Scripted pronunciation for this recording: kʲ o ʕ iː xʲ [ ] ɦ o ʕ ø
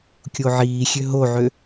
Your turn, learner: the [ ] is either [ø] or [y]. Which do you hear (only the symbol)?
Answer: ø